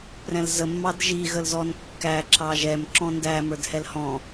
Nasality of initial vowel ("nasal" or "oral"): nasal